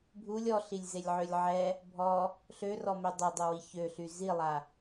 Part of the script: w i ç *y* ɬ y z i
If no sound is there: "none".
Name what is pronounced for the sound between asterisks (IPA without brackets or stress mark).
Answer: ø